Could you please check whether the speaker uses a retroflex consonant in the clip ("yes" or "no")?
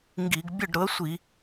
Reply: yes